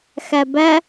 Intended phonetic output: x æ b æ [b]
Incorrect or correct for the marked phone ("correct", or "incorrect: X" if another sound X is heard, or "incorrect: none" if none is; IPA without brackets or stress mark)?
incorrect: none